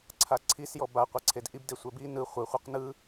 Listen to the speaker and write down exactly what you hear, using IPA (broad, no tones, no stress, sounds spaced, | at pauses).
ǀʰ a ǀʰ i s j ɔ b a qʷ a ǀʰ e d ʔ i b d e sʷ ɛ b i n ɯ χʷ ɯ χʷ ɯ q n ɯ